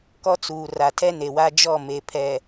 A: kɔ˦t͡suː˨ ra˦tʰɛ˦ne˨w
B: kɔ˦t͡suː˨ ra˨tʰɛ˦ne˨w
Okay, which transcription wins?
B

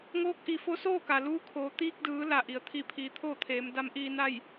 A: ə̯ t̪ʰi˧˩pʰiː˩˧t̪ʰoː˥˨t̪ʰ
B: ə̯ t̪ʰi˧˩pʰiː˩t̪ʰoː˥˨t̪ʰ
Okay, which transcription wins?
A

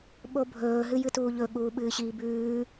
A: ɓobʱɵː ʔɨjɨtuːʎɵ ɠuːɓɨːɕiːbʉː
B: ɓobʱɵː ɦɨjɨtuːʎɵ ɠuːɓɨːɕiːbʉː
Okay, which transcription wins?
B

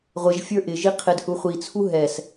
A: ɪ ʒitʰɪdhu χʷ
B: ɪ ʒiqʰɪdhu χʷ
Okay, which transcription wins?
B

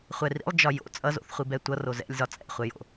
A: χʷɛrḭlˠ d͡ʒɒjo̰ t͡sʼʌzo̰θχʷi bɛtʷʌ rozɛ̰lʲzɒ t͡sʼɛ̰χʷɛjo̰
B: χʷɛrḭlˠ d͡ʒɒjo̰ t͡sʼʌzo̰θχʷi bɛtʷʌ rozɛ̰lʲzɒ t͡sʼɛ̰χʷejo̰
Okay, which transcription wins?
A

